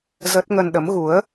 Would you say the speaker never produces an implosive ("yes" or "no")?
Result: no